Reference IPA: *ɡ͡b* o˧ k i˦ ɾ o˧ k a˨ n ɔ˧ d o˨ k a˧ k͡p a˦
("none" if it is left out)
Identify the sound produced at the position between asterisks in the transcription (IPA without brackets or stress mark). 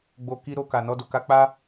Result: ɡ͡b